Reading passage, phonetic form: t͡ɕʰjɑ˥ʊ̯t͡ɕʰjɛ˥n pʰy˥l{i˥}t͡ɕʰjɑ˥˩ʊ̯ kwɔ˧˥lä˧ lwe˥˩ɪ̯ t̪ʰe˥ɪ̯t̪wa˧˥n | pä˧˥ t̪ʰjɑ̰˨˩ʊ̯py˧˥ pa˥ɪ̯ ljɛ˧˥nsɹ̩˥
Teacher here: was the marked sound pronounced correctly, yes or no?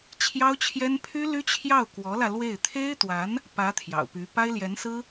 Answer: no